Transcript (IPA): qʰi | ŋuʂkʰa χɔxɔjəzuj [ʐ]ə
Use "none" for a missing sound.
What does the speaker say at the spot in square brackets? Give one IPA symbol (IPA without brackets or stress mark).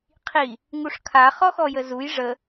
ʐ